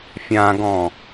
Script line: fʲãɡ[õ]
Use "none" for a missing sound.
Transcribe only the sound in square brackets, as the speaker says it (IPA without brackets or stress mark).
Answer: ɔ̃